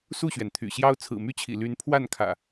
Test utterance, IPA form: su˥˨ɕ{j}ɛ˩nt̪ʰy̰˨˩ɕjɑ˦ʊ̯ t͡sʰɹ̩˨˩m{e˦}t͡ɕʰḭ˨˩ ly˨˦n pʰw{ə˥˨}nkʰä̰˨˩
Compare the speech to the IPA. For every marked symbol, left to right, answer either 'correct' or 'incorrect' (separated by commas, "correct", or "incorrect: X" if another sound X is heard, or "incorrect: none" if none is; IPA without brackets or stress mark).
incorrect: ɥ, incorrect: y˦, incorrect: a˥˨